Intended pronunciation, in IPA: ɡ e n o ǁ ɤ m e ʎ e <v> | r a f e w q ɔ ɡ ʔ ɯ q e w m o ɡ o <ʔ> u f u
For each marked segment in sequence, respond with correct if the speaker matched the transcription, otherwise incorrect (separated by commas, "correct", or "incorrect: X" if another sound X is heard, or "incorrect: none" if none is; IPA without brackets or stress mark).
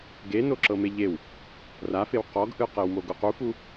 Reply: incorrect: w, incorrect: q